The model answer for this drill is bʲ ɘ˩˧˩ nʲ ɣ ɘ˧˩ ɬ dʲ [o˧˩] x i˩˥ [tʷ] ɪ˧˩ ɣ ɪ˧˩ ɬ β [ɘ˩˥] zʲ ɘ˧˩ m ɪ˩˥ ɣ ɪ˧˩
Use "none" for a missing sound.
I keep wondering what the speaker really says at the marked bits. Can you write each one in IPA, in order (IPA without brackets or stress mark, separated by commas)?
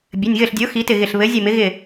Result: o˩˥, t, ɘ˩˥